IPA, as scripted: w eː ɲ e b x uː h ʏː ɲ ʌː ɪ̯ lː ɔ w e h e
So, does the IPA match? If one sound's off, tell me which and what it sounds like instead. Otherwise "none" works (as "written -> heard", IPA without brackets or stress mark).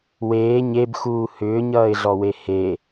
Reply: lː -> ɮ